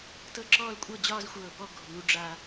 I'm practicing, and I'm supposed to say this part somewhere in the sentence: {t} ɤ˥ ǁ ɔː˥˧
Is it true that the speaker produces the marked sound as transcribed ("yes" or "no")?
yes